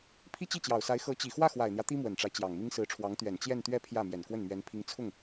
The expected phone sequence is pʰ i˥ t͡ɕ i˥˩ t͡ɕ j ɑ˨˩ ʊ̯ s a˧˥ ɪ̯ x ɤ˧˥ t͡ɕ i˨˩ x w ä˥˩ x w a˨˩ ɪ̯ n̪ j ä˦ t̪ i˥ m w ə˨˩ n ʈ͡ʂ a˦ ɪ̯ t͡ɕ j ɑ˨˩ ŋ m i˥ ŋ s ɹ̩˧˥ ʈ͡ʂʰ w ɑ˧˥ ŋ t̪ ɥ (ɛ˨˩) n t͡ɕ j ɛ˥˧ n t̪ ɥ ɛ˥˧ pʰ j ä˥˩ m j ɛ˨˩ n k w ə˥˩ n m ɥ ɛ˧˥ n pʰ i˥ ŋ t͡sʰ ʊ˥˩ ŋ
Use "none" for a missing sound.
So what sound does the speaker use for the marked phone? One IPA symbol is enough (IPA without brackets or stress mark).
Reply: ɛ˨˩